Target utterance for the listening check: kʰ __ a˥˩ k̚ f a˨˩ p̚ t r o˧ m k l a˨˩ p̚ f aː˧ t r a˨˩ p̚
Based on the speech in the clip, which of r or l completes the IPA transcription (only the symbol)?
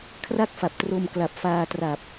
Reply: r